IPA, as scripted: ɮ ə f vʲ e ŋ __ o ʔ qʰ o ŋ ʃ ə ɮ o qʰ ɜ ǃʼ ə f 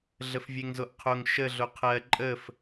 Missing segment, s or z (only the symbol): z